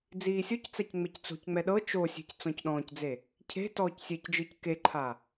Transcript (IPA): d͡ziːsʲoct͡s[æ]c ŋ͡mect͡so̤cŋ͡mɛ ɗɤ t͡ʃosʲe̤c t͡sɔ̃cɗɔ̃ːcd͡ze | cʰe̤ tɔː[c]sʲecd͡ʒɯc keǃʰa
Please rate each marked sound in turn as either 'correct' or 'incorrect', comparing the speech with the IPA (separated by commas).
incorrect, correct